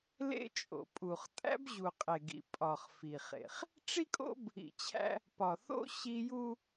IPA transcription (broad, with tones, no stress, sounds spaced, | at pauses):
l ḛ˦ t͡ʃʼ o̰˨ pʼ u˨ χ tʼ æ̰˦ b ʑ u˨ qʼ e˨ ɡ ḭ˨ pʼ ɒ˨ χ f i˨ χ ḛ˨ χ | ʈ͡ʂ i˦ kʼ o̰˦ b | ḭ˨ t͡ɕʰ æ̰˦ | p ɒ˨ θ o̰˦ ɕ i˦ j u˦